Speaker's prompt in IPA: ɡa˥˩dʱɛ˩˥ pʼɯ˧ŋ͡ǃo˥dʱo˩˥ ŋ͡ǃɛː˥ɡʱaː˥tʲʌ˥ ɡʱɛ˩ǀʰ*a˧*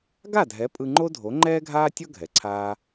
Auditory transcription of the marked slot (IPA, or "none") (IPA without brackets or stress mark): aː˧